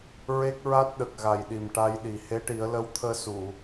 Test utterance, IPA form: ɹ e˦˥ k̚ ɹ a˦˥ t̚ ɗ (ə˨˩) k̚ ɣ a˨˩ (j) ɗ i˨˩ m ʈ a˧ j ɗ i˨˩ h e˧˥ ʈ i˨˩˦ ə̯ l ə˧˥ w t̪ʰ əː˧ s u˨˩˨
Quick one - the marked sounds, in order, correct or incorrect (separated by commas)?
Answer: correct, correct